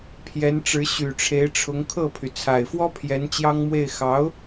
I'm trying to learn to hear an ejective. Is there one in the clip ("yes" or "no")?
no